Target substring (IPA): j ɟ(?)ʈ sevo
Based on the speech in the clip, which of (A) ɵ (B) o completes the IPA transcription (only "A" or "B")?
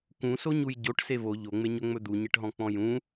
B